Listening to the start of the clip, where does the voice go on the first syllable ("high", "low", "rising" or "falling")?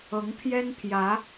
rising